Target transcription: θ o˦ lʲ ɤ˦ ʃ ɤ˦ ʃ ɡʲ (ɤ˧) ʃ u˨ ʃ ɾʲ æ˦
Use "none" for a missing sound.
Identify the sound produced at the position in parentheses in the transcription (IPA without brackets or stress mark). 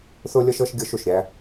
ɤ˦